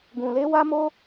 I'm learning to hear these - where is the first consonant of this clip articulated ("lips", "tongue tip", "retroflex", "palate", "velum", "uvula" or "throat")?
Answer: velum